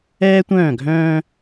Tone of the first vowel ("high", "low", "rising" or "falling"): high